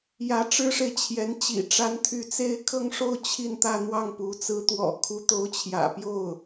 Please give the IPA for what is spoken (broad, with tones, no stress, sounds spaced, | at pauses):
j ä˧˥ ʈ͡ʂ ɻ̩˥ ʂ e˨ ɪ̯ t͡ɕʰ j ɛ˧˥ n t͡ɕ ḭ˨˩ ʈ͡ʂ a˧˥ n t̪ʰ y˧˥ t͡s e˥˧ ɪ̯ kʰ ɤ˥˧ ŋ ʂ o˥˧ ʊ̯ t͡ɕʰ i˥˧ n t̪ ä˥˧ n̪ w ɑ˥˩ ŋ p u˧˥ t͡s ɹ̩˧˥ t̪ w ɔ̰˨˩ kʰ u˧˥ t̪ o˧˥ ʊ̯ t͡ɕʰ j ä̰˨˩ p j o˥˩ ʊ̯